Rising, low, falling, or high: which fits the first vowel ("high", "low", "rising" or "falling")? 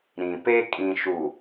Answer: low